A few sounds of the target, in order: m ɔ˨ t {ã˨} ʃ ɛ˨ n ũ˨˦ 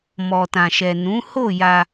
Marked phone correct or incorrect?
correct